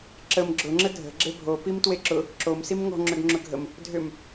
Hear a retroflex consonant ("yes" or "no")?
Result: no